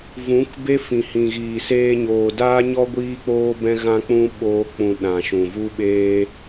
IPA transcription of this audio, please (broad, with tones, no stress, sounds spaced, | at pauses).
v ũ˨˦ k b e˦ f ĩ˨ h ĩ˨ ɣ iː˨ s eː˧ ɲ oː˨ d aː˦ ɲ ɔ˦ ɡʷ iː˦ k͡p oː˦ b ɛ̃˦ ɣ ã˦ k͡p ũ˦ ɓ oː˦ k͡p ũ˧ ɗ ã˨ ʃ ũ˨ v u˦ ɓ eː˦